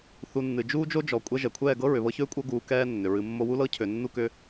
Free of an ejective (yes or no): no